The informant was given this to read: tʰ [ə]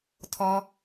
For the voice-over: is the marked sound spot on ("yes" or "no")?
no